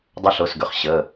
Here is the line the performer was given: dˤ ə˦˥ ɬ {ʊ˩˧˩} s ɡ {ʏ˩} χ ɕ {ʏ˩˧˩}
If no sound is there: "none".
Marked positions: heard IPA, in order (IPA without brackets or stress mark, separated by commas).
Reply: ʊ˩˧˩, ʏ˩, ə˩˧˩